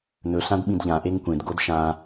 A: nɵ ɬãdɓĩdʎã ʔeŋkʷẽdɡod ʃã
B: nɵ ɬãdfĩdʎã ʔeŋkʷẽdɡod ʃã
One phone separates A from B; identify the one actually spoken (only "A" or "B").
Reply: A